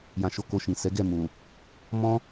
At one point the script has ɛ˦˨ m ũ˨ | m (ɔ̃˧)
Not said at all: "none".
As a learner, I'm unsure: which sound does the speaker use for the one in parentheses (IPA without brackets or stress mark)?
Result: ɔ̃˦